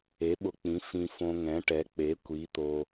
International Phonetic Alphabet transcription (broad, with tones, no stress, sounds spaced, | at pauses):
e˩˥ ɓ ʊ˨ k͡p ĩ˩˥ f ĩ˨ f õ˨ ŋ ɛ̃˩˥ ʈ ɛ˩˥ k͡p e˩˥ kʷ i˩˥ t̪ o˨